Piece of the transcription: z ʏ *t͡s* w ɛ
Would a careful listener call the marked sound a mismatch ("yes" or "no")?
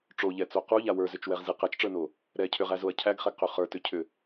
yes